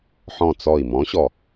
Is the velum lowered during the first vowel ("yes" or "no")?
yes